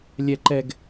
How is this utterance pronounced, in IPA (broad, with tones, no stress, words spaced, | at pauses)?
lʲɛ˨ǃɛ˨ɡ